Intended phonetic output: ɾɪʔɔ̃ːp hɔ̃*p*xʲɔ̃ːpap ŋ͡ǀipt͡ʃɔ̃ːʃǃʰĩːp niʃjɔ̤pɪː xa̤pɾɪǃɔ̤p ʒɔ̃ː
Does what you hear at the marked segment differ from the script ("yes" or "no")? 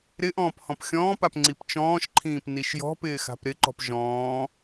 no